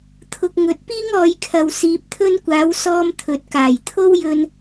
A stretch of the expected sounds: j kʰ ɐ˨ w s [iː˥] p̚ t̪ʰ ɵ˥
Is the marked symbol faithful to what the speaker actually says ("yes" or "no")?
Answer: no